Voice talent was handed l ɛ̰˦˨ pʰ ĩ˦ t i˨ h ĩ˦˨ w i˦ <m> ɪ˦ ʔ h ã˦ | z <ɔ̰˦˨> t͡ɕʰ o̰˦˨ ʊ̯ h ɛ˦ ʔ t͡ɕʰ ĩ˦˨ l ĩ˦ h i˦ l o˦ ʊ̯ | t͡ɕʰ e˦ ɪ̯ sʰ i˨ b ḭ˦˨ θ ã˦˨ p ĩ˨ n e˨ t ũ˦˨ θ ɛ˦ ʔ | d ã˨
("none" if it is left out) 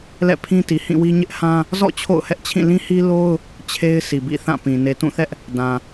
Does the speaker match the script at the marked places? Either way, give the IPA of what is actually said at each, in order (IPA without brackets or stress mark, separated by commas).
ɲ, ɔ̰˦˨